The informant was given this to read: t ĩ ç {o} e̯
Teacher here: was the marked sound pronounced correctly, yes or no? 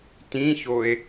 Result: yes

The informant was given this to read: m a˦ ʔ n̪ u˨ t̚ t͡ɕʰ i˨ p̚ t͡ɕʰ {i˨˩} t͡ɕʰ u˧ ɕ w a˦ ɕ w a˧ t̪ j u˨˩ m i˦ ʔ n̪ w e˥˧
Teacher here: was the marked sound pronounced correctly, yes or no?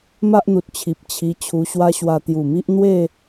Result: no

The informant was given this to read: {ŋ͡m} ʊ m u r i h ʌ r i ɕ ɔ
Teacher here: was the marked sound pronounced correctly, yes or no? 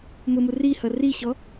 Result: no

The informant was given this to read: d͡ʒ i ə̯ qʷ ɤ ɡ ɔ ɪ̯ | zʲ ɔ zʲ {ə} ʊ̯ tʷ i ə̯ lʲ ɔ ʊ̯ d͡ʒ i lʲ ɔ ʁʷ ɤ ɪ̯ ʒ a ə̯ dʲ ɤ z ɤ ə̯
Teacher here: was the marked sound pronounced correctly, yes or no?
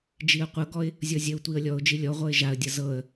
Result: yes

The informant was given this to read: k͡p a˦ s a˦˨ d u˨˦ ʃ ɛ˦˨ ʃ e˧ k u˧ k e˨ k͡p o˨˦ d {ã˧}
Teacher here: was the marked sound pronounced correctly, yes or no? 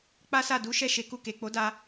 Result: no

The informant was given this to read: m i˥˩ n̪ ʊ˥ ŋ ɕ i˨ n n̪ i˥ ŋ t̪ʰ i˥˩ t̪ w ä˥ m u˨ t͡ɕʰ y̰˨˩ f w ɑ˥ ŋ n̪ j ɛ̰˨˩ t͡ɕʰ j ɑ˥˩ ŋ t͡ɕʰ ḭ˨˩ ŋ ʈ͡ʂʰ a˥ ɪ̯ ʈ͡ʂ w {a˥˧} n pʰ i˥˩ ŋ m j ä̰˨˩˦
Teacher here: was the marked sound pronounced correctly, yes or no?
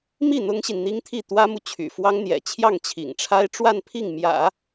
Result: yes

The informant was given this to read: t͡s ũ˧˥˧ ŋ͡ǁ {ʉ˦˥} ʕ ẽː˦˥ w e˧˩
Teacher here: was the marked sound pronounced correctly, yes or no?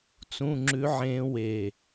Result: yes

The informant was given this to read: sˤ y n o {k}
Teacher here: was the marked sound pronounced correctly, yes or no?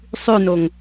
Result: no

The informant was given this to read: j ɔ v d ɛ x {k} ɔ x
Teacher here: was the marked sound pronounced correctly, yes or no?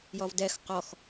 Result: no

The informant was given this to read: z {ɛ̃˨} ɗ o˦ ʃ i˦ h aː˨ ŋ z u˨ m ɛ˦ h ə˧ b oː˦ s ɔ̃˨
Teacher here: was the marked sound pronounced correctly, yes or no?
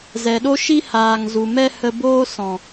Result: no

